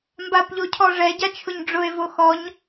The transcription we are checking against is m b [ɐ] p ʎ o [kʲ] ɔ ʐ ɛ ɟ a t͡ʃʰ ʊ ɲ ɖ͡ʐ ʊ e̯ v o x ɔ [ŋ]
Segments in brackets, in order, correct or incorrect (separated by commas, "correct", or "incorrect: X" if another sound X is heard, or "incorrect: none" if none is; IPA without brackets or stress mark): incorrect: a, incorrect: cʰ, incorrect: ɲ